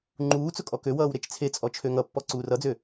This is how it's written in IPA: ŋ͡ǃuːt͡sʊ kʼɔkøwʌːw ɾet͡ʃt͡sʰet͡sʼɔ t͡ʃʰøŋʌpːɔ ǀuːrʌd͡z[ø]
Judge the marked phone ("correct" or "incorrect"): correct